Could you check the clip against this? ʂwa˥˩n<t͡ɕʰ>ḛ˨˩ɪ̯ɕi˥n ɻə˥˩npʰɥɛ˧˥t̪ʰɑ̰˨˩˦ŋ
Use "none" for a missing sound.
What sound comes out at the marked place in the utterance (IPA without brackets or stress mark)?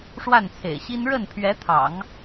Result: t͡sʰ